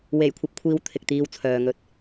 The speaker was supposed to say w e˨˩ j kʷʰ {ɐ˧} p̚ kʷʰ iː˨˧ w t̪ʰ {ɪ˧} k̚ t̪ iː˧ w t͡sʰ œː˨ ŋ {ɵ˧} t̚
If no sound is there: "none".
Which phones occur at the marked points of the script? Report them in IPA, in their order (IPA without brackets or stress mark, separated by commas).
ɐ˧, ɪ˨, ɵ˧